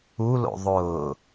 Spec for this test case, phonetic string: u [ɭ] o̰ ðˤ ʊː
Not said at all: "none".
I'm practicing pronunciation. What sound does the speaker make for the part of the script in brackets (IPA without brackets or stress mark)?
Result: l